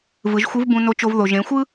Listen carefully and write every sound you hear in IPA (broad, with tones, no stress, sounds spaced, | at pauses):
v ɯ˩˧ ʒ xʷ ɯ˧˥ v b ũ˧ n o˧˥ t͡ʃ o˧ v ð o˩ ʒ ẽ˩˧ xʷ ɯ˥